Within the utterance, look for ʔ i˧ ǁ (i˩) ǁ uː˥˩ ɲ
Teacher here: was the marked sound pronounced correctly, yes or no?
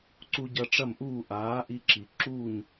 yes